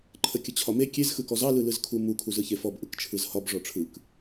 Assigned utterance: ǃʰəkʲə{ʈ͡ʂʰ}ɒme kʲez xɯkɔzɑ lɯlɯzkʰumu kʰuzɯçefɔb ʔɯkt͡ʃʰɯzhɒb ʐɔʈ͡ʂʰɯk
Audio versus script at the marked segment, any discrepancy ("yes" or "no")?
yes